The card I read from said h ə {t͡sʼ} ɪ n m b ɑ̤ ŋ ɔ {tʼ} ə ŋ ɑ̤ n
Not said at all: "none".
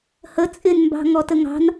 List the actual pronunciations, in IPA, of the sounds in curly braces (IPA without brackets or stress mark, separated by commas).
t͡sʼ, t